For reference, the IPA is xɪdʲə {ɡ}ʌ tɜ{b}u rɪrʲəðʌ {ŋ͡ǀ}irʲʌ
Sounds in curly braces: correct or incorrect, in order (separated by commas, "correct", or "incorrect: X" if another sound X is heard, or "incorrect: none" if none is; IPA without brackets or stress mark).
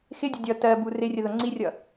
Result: incorrect: dʲ, correct, correct